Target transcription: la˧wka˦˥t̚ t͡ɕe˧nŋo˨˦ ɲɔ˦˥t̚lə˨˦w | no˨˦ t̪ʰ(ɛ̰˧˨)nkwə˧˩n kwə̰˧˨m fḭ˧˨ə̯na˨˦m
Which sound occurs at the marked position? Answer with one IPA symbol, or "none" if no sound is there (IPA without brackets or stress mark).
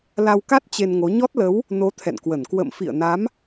ɛ̰˧˨